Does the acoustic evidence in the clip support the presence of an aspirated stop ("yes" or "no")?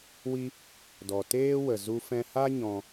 no